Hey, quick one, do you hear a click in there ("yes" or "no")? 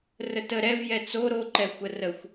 yes